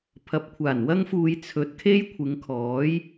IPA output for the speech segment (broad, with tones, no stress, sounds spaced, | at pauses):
pʰ ɐ˨˥ p̚ kʷʰ aː˨˩ n w ɐ˥ ŋ f uː˧ j t͡sʰ ɵ˨˥ t̚ kʰ e˥ j kʷʰ ɪ˨˧ ŋ kʰ ɔː˨˥ j